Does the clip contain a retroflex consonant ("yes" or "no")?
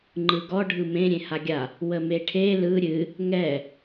yes